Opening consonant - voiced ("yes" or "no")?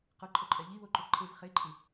no